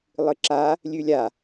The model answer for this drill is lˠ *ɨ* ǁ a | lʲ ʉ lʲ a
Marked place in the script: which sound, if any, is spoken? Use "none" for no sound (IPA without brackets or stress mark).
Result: ɨ